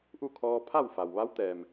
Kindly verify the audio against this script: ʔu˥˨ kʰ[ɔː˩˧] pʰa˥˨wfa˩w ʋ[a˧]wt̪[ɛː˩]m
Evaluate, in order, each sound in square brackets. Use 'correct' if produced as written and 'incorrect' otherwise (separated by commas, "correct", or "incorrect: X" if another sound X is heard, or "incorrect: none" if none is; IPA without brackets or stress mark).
incorrect: ɔː˧, incorrect: a˧˥, correct